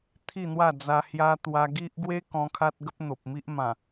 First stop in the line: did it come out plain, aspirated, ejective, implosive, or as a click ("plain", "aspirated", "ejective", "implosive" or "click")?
aspirated